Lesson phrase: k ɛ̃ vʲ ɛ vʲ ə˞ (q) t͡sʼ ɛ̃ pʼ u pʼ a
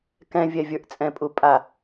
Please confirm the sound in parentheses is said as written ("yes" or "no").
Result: no